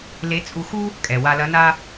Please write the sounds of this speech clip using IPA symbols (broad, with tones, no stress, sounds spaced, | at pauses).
l e˧˥ t͡sʼ u˧ x u˥ | kʼ ɛ˩ w a˧ l ɐ˧˥ n a˥